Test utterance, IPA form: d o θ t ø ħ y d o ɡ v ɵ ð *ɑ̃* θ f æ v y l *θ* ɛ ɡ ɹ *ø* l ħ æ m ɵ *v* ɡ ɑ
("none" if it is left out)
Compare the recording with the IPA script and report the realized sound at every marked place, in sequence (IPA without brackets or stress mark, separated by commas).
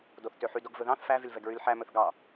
ɑ̃, v, y, θ